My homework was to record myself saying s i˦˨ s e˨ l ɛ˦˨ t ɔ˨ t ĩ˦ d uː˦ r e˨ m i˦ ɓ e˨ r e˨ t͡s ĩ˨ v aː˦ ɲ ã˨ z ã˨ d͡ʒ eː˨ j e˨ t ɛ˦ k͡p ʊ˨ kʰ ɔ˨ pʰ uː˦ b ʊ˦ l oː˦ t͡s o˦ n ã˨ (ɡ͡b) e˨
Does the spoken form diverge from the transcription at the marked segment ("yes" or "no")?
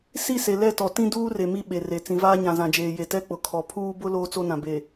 yes